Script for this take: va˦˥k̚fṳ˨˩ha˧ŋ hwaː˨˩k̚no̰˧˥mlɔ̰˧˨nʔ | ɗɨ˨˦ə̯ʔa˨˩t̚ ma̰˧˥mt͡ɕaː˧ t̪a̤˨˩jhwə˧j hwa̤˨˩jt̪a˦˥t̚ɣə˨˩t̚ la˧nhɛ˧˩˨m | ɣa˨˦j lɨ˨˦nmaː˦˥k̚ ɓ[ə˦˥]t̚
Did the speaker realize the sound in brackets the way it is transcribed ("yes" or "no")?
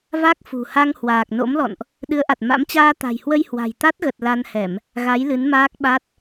no